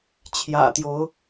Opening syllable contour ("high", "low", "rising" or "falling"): low